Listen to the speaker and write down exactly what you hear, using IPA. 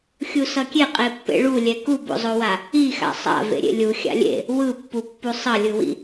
xʲ u s ʌ kʲ e qʼ e pː ḛ ɭ u lʲ ɛ k u b o̰ zˤ o w a | i x a̰ sˤ a̰ v ḛ ɾʲ ḛ lʲ u xʲ a̰ lʲ ḛ | w ɯ pː u pː u sˤ ʌ lʲ ɯ w ḭ

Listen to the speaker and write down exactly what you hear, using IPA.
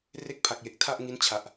r e˥˩ k̚ pʰ a˨˩ k̚ j e˨˩ k̚ tʰ a˥˩ ʔ ŋ i˦˥ n t͡ɕʰ a˨˩ ʔ

